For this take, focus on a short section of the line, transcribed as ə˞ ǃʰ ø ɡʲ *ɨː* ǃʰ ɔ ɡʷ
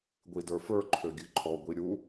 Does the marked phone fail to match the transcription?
yes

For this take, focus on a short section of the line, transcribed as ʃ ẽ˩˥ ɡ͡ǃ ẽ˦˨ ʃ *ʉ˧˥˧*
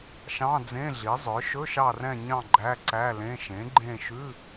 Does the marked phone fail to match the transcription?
no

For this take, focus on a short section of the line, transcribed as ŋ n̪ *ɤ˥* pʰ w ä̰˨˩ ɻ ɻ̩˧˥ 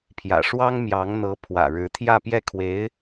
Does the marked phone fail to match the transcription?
yes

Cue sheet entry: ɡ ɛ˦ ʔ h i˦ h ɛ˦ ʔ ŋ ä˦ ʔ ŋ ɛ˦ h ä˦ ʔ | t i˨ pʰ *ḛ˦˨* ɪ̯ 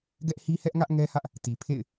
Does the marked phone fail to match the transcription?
no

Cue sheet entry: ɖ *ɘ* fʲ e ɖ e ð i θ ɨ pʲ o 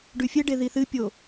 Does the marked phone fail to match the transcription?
yes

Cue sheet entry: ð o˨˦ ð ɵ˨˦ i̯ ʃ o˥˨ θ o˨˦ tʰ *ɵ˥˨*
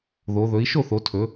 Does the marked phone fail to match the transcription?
yes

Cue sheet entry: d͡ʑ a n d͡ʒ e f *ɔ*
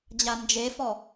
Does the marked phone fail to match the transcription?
no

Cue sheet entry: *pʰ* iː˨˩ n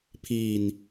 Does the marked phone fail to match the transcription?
no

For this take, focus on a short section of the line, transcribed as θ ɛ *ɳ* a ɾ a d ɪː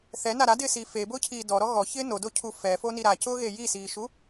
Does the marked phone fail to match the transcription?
yes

